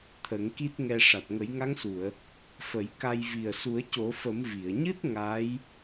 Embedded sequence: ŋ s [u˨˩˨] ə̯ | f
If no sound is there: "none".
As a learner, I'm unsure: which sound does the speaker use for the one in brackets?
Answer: u˨˩˨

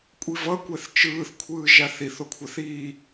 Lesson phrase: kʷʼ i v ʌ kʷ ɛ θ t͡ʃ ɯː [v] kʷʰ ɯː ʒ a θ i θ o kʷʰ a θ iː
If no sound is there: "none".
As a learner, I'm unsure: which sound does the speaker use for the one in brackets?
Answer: θ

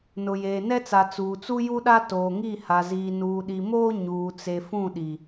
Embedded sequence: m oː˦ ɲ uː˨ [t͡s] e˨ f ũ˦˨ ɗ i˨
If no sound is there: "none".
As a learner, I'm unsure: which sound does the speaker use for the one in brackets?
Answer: t͡s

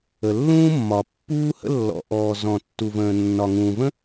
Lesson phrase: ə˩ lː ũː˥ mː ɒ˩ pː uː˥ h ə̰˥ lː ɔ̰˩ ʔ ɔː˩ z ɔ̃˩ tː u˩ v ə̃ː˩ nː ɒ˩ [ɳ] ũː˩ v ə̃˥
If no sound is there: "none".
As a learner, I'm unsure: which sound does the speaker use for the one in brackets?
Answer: ŋ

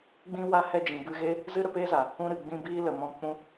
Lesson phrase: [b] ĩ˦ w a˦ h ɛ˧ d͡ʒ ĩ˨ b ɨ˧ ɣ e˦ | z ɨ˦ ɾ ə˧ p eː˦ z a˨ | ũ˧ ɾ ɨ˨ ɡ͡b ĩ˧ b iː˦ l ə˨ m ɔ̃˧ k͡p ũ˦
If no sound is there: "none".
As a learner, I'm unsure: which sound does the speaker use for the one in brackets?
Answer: ɡ͡b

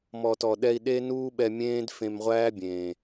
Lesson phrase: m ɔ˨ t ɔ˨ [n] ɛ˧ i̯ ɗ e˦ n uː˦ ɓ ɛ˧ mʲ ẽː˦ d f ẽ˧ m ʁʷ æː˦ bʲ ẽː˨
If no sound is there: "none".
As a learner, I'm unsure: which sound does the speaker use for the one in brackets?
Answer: ɗ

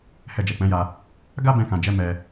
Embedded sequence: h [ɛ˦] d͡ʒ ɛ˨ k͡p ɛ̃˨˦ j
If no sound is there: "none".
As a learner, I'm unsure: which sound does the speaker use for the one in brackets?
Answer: ɛ˧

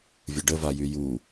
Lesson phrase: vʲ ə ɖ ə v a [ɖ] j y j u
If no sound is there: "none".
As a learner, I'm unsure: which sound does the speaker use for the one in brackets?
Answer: none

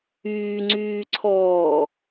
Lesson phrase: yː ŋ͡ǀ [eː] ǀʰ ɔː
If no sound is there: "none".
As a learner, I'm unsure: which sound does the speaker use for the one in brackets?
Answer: yː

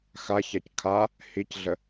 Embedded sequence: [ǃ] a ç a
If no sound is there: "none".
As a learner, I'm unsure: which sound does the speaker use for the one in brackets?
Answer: x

